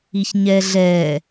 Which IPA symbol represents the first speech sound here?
i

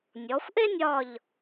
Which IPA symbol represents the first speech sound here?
nʲ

